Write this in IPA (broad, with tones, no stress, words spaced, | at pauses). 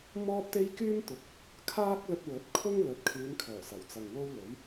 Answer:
mɔː˥p̚t̪e˥j kyː˥mt̪ʊ˨˥k̚ | kʰaː˥k̚lɵ˧t̚wɵ˨˥t̚kʰʊ˥ŋ lɵ˨˥t̚kʰyː˨˧nkʰœː˨˩ sɐ˨˩wt͡sɐ˨ŋwo˥wlɵ˨˥ɥ